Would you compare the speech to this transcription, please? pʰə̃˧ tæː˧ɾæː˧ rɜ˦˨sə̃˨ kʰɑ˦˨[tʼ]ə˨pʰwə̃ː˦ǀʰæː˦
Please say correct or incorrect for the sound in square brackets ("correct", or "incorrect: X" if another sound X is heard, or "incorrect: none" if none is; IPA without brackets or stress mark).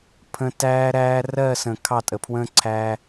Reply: correct